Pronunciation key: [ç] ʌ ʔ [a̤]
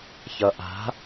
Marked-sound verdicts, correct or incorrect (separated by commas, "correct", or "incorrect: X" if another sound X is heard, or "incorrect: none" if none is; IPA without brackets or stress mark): correct, correct